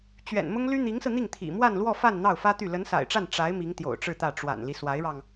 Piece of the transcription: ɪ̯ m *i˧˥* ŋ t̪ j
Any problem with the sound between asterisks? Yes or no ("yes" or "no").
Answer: no